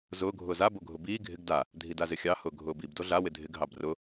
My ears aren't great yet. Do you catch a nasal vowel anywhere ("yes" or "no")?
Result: no